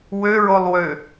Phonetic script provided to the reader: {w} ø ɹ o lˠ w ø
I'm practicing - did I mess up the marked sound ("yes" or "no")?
no